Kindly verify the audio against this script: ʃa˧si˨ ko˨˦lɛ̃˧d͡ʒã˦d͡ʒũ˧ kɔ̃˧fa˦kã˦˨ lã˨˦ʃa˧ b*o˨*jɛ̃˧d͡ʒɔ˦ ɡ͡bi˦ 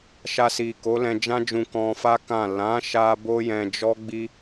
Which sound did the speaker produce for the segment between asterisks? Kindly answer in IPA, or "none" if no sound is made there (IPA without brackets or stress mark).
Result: o˦